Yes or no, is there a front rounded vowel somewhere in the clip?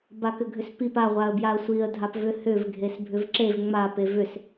yes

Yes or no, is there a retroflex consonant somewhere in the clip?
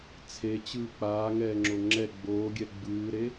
no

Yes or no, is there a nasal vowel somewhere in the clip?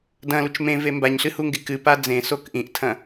yes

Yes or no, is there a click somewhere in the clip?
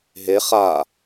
no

